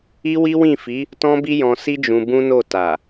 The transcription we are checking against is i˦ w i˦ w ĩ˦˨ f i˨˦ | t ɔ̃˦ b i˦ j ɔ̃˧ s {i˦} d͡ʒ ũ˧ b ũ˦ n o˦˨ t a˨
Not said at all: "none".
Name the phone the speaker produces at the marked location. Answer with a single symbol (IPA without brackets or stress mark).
i˦